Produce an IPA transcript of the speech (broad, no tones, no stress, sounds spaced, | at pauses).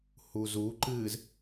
h u z u ǃ ɨː z